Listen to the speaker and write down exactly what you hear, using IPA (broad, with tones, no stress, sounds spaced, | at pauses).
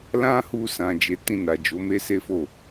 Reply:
l ã˦ h u˧ s ã˨ d͡ʒ e˨˦ t ĩ˦˨ n a˨ d͡ʒ o˨˦ m e˦ s e˦ f o˦˨